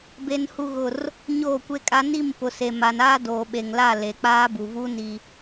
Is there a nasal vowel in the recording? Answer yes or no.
no